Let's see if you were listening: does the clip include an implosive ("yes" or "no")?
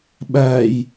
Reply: yes